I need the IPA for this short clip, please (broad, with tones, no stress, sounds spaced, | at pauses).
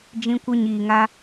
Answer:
d͡ʒ ĩ˧ kʷ ə˧ ɲ iː˨ ŋ a˧